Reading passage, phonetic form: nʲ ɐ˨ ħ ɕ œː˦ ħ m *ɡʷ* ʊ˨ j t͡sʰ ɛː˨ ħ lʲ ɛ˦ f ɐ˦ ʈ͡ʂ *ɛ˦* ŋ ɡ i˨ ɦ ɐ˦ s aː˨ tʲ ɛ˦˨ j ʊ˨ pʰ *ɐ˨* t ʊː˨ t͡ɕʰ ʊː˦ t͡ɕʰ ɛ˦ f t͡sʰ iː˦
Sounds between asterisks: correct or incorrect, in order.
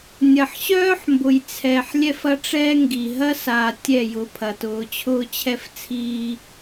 incorrect: b, incorrect: ɛː˦, correct

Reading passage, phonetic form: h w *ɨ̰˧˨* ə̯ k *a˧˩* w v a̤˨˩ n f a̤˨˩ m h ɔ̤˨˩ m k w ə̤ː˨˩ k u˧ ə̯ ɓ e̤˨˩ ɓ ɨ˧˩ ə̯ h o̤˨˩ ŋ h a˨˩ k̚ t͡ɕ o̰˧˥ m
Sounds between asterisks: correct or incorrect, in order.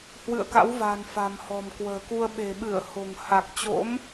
correct, incorrect: a̰˧˥

